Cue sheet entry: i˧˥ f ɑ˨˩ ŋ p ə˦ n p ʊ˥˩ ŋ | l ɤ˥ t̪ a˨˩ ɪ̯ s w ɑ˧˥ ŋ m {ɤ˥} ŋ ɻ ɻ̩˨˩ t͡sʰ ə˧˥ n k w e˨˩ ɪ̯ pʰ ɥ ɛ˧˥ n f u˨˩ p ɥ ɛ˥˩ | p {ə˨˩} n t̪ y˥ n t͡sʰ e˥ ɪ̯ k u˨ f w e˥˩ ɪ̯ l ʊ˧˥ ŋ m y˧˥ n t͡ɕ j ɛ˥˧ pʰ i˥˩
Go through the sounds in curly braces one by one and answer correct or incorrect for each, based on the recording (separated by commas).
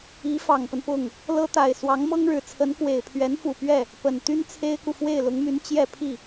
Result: correct, correct